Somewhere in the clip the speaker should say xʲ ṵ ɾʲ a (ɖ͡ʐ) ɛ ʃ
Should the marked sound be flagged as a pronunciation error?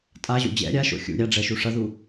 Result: no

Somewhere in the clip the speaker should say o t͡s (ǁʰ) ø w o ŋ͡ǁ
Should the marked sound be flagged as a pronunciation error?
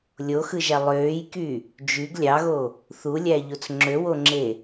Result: yes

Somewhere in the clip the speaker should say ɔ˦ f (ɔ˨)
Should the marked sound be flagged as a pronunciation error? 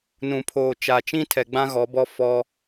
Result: yes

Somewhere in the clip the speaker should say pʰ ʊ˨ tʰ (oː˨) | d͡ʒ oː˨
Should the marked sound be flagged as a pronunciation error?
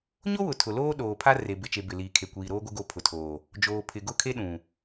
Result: no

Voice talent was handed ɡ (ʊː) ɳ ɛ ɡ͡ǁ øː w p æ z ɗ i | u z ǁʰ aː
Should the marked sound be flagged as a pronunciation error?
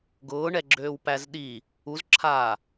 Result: no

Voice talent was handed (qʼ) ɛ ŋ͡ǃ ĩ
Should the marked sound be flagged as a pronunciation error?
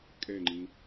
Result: yes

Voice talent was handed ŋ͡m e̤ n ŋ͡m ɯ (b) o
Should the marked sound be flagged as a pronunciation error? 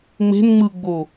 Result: yes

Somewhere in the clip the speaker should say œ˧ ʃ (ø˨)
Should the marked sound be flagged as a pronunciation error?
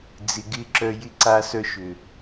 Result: no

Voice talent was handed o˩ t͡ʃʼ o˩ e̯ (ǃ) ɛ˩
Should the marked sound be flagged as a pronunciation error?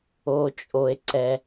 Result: yes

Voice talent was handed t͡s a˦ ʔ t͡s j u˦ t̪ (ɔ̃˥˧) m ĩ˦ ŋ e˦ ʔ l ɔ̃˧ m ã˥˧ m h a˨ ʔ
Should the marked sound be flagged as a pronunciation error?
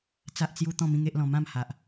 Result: no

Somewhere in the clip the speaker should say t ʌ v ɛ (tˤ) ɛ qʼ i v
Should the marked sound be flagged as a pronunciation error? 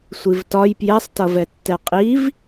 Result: yes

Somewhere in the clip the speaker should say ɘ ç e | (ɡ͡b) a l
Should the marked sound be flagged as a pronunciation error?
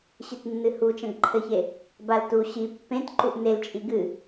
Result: yes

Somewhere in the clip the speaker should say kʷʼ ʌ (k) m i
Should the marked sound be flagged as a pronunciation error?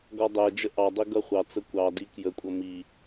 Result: yes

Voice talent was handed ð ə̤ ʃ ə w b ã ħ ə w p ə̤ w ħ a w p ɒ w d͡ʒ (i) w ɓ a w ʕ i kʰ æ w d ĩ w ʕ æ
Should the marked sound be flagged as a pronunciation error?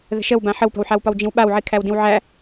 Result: yes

